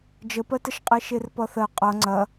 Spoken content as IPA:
d͡ʒəpɜtəʃqʼe ʃerpʌθɜ qʼʌ ŋ͡ǀɐ

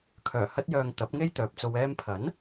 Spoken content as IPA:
kʰœː˨˩hɐ˧t̚jœː˨ŋ t̪ɐ˨˥p̚ŋe˥j t̪œː˨p̚t͡so˧wɛː˥m pʰɐ˨˥n

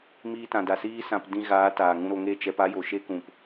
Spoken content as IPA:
miː˧tã˨da˨ siː˦sã˧p dĩ˧ɣaː˨˦ taː˨ŋũ˧ɾo˧ŋe˦˨ t͡ʃɛ˧pa˦jo˨ ʃe˦kũ˨p

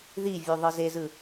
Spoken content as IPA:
ðivʲu ðˤɯzezɯ

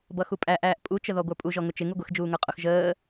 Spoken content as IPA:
bʌxupʼæʔæːʔ pʼut͡ʃəðɔ ɡʷə˞pʼuʒɔ ŋʊt͡ʃɪ ŋuɡʷɪx d͡ʒuːŋə˞qʼʊx ʒəː

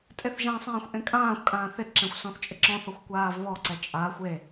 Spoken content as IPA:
tʼeθʒãsˤɛ̃ːxʷ ʔẽkʼãːxʷkʼãː θɪdǁɛ̃xʷ sɔ̃θt͡ʃʼɪǁɔ̃θɔxʷ kʷaːvβɔǀɛ t͡ʃʼa xʷe

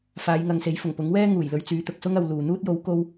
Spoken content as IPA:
faː˨˧jŋɐ˨ŋse˨˥jfʊ˨˩ŋ pʊ˨˥ŋwɛː˥ ŋuː˨˩jlɵ˧ɥ t͡syː˨˧t̪ʊ˨k̚sʊ˥ŋɐ˨w luː˨ n̪uː˥t̚jo˨˥w ko˥w

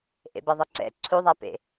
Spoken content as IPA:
ʔḛbɛðˤeǀɛ̰ ǀʰuðˤapḛ

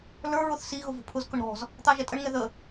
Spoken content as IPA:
lə˞ɹʊθ si ɣʊvṳpʰʊzkʊɳ ɾɔ̤z | t̪ɑʒɛtʼəɳŋɛ ðə

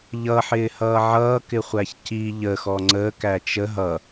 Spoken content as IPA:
ʎʌħɪːhʌː ʕʌːkɪχʷæç ci ʎəxɔ ŋ͡ǀəːkæ t͡ʃə ɦʌ

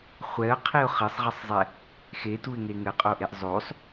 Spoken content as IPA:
χʷɛə̯qʰiʊ̯ χɘsˤʁɘsˤzˤɛ | xetuɪ̯ŋe ŋɘqʼoʔeʔ zˤosˤ

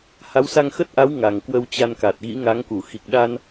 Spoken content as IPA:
ha˨˦wsa˧ŋ xə˦˥t̚ʔa˨˦w ŋa˨˩ŋkwə˧wt͡ɕa˧nka˨˩t̚ ɣḭ˧˥ŋa˨˦ŋku˧˩ xi˨˩k̚ɗa˧n

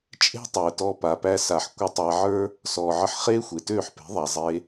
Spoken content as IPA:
t͡ʃʼe̤˦tˤəː˨tɔ˧ pa˨pæ˧ sa˨ħ kʷə˧tˤæ˧ʕə˞˦ | sɔː˨ʕə˧ħ χeː˦xʷe˨tøː˦˨ħpe̤˨˦ ðˤa˨zˤe˧

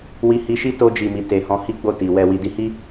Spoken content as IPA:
wi˧hi˧ʃi˦ to˧d͡ʒi˨mi˨ te˨hɔ̃˧ hi˦ɡ͡bo˦˨ ti˨ wɛ˨wi˨di˧hi˦

